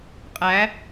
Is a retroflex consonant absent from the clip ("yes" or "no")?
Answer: yes